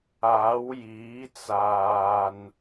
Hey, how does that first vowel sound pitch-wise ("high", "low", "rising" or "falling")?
rising